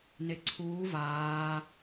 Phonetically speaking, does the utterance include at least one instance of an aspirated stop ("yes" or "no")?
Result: yes